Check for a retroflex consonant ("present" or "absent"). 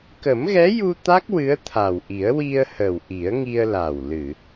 absent